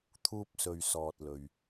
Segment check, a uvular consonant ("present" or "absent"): absent